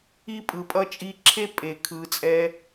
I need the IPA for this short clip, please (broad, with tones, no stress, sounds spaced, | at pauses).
i˦ pʼ ɯ˨ pʼ ʌ˦ t͡ʃʼ i˧ ǁʰ e˦ pʼ e˨ kʰ ɯ˨ t͡sʼ ɛ˧